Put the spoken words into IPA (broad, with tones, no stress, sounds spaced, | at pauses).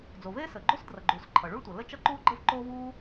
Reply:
d͡z o˩ v eː˥ s əː˩ ɡ͡ǃ o˥ s d r ʌ˩ ɡ͡ǃ uː˩ s ǃʰ ʌ˩ ɭ u˥ ɭ tʷ ʌ˩ l ə˥ t͡ʃ ʌ˥ ǃ uː˥ ɡ͡ǃ ə˥ v ǃ oː˥ v uː˥